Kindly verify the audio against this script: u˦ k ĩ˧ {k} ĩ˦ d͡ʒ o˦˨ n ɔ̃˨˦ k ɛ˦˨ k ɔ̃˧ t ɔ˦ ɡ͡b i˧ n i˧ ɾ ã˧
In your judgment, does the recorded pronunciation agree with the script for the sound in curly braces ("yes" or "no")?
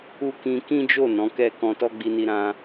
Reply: yes